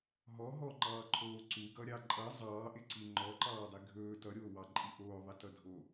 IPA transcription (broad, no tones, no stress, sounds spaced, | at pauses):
ɦ ɔ ɦ ɔ ŋ͡ǃ ɑː ǃʰ oː ǀ u ɡ ʌ ɾʲ ɑ ǃʼ ʌ zˤ ɑː ʔ ɪ ǀ i ŋ͡ǃ ɔ ǃ ɑː dˤ i ɡʱ ɵː t ʌ ɾʲ oː w ɑ ǃʼ i ʔ oː ðˤ ɪ t ʌ dʱ o